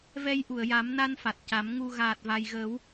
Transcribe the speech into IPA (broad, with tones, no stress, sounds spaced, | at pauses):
v ɛ˧ j ʔ u˨˩˨ ə̯ j a˨˩˦ m n a˧ n f a˨˩ t̚ c a˨˩˦ m ŋ u˨˩ ɣ aː˨˩ t̚ v a˨˩ j ɣ əː˨˩˦ w